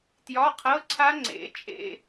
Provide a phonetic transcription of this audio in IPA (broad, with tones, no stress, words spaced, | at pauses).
tjɒ˧˥˧qʰɤ˧˥˧ǀʰa˦˥ ŋ͡ǀḛ˩˥ t͡ʃʼḛ˦˨